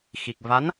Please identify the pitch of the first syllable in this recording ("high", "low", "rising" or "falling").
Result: low